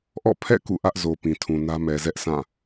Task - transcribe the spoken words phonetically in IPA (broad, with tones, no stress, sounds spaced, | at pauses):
ʔ ɔ̰˦˨ pʰ ɛ̰˦˨ k ṵ˦˨ ʔ ä˦ ʔ z o˨ p ĩ˨ tʰ ũ˨ n ä˦ m ɛ˨ z ɛ˦ ʔ sʰ ã˦˨